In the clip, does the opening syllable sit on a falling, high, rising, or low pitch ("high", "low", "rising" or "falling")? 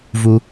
high